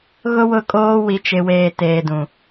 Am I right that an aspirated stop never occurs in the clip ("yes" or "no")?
yes